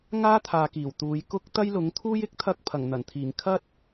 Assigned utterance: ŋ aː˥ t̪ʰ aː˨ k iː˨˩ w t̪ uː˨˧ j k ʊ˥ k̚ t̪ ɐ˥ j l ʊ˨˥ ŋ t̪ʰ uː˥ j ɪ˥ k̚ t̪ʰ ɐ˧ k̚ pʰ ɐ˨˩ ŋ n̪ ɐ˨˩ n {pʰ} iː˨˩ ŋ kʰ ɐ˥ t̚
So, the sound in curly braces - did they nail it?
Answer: no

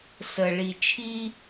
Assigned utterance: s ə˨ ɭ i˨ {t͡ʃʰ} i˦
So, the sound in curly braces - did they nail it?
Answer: yes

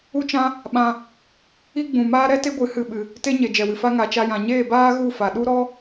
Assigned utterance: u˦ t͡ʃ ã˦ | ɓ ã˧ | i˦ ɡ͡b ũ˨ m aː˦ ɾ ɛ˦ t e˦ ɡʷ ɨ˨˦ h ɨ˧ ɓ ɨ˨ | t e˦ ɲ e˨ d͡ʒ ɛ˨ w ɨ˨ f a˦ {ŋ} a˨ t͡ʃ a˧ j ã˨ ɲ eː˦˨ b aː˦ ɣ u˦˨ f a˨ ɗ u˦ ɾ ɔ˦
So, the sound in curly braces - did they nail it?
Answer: yes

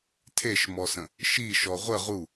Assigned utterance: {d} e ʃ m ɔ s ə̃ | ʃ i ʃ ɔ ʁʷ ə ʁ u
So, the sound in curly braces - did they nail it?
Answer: no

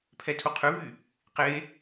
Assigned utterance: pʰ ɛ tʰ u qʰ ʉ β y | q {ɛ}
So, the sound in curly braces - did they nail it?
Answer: no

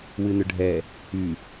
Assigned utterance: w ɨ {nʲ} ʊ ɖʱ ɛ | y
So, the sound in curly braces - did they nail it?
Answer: no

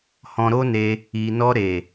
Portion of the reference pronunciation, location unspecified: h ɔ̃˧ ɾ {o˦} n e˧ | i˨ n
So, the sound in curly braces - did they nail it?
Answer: yes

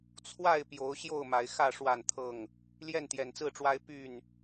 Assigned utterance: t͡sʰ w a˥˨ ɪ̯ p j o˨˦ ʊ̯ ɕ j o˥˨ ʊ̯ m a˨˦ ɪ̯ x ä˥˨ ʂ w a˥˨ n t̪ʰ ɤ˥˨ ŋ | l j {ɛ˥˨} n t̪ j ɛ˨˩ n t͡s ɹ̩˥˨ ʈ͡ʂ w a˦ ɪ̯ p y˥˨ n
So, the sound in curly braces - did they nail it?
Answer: yes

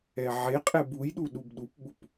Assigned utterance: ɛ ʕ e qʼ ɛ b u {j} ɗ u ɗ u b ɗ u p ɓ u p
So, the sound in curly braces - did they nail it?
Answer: yes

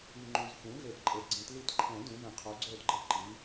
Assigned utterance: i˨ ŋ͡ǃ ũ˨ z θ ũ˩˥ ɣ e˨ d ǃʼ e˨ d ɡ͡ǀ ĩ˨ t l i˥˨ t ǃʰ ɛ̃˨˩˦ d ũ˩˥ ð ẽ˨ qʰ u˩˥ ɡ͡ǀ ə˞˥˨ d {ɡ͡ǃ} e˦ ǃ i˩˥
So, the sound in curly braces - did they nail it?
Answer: yes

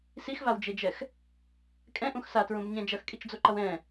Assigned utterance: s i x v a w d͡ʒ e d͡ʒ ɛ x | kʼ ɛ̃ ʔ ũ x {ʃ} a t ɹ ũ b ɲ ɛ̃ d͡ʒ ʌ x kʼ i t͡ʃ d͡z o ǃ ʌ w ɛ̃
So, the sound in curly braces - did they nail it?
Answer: no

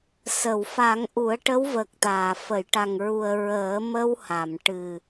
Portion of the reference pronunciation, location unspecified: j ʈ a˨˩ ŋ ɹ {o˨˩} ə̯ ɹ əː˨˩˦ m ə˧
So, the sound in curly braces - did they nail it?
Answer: no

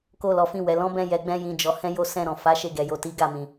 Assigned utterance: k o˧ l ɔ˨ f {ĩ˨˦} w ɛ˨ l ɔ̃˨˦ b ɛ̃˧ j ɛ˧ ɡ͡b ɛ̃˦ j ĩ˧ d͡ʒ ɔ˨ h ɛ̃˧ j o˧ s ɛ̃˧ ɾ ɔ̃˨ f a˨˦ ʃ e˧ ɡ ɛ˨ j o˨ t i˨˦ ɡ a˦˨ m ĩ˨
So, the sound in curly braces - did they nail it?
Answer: no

